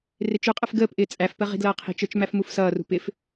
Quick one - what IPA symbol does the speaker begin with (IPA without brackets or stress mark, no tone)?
r